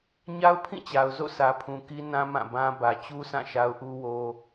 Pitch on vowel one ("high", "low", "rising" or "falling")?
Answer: high